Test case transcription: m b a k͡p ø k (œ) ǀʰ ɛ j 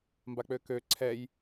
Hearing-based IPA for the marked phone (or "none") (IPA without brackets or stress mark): ø